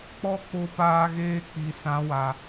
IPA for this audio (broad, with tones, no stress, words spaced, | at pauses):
k͡pɔ˦k͡po˧paː˧ɣeː˧ k͡pi˨sã˨˦wa˨